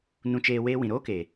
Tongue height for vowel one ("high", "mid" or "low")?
high